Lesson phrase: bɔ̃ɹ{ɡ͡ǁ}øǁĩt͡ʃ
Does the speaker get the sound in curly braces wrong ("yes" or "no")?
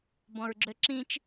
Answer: no